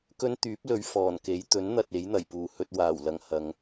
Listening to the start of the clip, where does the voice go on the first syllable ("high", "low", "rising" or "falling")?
high